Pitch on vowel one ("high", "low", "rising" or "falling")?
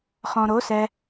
low